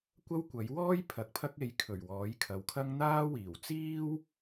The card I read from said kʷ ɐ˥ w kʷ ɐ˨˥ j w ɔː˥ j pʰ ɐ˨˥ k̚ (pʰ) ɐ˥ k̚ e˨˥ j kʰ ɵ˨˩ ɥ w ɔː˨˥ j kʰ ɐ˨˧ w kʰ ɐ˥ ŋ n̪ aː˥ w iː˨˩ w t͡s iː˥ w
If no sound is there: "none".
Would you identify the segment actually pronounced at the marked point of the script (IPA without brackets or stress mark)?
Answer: pʰ